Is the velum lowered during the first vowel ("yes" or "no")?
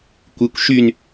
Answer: no